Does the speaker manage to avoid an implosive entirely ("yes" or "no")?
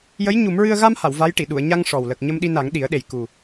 no